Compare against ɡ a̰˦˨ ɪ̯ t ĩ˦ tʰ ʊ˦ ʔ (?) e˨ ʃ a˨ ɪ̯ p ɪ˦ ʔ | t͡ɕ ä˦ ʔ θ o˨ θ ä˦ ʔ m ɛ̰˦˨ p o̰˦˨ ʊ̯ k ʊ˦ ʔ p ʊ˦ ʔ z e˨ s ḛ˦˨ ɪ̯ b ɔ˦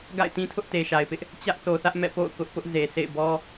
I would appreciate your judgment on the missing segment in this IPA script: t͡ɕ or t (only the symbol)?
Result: t